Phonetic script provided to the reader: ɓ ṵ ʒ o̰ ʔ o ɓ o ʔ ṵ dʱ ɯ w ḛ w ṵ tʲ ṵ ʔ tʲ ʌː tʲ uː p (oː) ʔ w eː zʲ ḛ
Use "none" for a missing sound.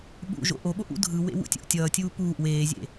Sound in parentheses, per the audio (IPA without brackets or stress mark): uː